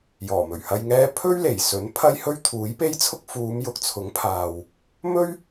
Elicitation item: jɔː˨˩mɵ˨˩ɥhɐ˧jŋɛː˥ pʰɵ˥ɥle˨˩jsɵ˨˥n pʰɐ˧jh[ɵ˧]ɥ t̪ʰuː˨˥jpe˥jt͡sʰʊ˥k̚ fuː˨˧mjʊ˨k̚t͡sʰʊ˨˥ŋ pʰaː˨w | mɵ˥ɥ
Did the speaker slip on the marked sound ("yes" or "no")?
no